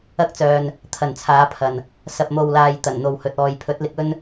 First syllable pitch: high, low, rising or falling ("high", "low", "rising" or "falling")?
high